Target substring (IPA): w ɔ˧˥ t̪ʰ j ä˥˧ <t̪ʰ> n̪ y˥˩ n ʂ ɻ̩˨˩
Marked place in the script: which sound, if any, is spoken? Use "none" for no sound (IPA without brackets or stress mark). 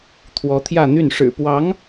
none